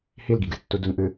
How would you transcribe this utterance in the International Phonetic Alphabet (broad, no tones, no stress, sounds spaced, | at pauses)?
h i l ɡ i ɡ ɨ tː u d u n ʔ ɨ